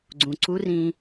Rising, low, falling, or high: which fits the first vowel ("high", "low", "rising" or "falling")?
low